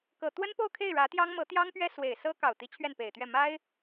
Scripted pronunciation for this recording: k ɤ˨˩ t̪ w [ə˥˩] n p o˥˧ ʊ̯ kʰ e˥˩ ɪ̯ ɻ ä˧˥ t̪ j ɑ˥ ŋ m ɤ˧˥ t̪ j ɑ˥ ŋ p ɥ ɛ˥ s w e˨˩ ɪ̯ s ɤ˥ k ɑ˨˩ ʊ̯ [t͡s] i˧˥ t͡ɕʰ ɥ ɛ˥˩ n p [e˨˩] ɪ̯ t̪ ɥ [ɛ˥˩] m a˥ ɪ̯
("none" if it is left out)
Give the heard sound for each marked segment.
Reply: ə˥, t̪, e˨˩, ɛ˥˩

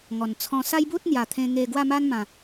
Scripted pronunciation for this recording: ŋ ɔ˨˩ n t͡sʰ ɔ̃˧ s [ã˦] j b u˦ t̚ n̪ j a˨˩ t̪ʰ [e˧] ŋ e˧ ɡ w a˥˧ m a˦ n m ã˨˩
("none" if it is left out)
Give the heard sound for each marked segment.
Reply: a˦, ẽ˧

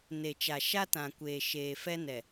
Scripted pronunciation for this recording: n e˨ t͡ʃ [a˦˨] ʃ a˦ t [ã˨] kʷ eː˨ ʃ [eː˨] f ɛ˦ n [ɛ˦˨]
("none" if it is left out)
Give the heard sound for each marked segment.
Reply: a˨, ã˨, eː˨, ɛ˨

